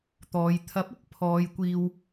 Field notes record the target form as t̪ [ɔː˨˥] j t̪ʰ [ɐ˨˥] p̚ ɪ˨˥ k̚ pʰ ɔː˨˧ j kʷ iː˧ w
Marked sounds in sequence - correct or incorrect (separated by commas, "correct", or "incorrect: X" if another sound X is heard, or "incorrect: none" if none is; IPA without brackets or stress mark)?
incorrect: ɔː˨˧, correct